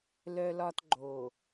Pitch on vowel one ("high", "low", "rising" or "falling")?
high